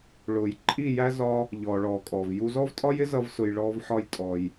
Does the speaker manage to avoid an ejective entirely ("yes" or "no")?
no